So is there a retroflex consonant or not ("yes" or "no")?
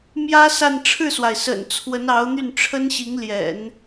yes